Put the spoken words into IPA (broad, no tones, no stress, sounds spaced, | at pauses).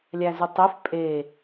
lʲ æ z y tˤ e f pʼ e